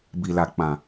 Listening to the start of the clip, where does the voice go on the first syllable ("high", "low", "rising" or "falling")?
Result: low